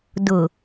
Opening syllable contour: low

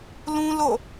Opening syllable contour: high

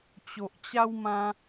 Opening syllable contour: low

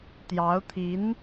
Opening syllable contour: rising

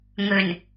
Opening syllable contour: low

